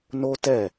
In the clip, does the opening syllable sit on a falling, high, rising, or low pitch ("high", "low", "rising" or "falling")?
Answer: high